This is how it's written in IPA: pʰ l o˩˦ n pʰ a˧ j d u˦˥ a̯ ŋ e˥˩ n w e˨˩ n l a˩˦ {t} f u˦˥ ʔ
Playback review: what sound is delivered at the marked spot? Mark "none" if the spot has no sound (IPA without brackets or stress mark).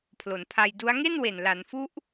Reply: n